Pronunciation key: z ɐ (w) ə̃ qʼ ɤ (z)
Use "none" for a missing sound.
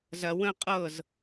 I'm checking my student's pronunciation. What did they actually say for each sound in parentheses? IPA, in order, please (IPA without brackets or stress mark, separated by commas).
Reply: w, z